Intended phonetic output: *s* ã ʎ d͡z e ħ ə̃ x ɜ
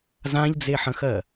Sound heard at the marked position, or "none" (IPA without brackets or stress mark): z